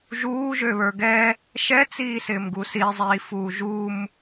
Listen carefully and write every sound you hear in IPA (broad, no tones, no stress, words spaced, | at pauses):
ʒuːʒø βə˞ɡɛ | ʃɛt͡siːsɪːmɡu sizˤiːfuː ʒum